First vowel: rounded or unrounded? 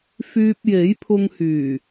rounded